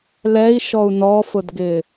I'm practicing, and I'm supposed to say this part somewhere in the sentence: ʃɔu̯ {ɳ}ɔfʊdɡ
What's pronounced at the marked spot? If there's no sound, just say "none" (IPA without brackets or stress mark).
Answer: n